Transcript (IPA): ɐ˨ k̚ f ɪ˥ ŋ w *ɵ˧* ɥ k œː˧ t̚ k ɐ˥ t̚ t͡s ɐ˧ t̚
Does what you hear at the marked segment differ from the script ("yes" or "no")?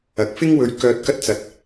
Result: no